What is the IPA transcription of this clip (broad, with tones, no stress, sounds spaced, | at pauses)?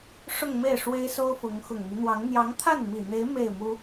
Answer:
ʂ ʊ˥˧ ŋ m e˥˩ ɪ̯ ʂ w e˥ ɪ̯ s o˥ ʊ̯ f ʊ˧˥ ŋ x ʊ˨˩ ŋ n̪ y˦ n̪ w ɑ˧˥ ŋ n̪ j ɑ˧˥ ŋ t̪ʰ a˥˩ n m i˨˩ n̪ e˧˥ ɪ̯ m e˥˩ ɪ̯ m u˥